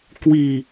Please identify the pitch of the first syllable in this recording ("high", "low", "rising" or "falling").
low